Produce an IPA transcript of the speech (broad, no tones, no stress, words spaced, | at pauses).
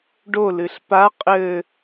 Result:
ɖolɨɬ pa qʼɘ